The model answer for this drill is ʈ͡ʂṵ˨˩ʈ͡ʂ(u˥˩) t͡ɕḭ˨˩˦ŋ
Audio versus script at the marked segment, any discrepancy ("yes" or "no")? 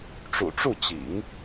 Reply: no